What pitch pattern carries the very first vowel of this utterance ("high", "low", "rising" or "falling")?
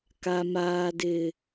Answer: low